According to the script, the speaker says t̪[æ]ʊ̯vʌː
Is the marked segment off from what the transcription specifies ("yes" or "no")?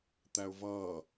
no